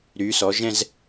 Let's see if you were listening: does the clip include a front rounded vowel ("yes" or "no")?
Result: yes